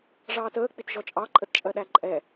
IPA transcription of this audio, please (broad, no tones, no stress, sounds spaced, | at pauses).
ʐ ɑː t əː k͡p i t ʒ ɔ t͡ʃʼ ɑ ǃʼ ə t t͡ʃʼ ɜ ɗ æ ǃʼ ɛ